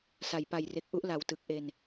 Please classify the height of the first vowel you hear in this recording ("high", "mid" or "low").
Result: low